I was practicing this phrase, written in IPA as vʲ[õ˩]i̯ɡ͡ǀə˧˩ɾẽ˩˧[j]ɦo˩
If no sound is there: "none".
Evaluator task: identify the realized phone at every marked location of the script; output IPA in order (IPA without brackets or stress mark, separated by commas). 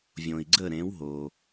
õ˩, w